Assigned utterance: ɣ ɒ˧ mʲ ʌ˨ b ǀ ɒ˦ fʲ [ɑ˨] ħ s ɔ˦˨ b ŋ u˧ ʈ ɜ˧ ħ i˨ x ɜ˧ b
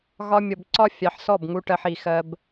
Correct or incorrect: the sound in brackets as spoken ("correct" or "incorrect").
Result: correct